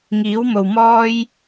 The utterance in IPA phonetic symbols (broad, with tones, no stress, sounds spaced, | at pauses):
ŋ iː˨˥ w m o˨ w m ɔː˥ j